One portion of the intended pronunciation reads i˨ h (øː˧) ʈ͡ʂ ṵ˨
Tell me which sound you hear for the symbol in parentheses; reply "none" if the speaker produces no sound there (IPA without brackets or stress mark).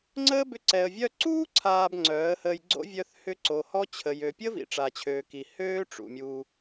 øː˦